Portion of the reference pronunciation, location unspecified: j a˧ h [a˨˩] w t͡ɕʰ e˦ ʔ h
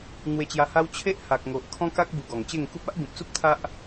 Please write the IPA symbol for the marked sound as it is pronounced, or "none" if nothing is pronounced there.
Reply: a˦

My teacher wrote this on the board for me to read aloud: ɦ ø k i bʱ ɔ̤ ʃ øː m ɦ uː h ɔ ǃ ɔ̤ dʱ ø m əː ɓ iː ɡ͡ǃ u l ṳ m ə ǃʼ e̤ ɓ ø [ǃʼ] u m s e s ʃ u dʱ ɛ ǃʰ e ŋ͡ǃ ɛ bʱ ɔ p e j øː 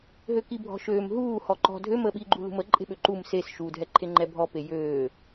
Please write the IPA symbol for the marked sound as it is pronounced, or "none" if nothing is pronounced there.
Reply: ǃ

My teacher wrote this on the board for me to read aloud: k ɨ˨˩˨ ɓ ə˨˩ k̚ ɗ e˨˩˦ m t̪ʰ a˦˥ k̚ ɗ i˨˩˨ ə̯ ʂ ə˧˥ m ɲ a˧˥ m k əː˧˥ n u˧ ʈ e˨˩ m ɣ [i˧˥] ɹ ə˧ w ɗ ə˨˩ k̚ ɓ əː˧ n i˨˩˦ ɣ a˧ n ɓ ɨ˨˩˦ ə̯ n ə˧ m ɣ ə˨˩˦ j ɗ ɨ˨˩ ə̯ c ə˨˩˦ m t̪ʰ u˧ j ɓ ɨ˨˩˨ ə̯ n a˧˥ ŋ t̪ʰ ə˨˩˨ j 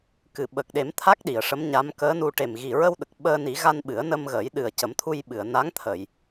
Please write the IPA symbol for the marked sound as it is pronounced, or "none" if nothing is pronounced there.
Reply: i˨˩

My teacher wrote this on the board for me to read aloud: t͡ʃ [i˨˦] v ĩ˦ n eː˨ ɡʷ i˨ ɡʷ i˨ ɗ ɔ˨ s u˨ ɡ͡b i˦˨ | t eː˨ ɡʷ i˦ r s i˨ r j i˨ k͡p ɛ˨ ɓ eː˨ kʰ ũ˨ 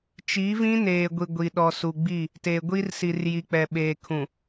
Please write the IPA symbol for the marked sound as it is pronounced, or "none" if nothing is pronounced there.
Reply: i˨˦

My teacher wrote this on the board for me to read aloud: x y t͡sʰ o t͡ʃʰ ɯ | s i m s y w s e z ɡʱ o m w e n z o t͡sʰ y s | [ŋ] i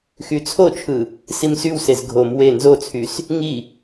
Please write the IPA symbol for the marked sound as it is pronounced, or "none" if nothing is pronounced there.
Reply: ŋ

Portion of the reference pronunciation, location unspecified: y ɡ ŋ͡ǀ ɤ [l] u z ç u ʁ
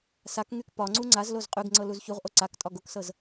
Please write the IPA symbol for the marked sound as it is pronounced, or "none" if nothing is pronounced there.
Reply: l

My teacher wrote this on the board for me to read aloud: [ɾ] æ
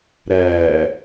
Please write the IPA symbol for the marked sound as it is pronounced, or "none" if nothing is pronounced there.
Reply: ɾ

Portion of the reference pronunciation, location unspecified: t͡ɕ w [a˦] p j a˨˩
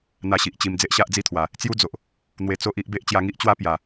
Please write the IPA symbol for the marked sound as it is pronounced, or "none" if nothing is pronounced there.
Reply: a˦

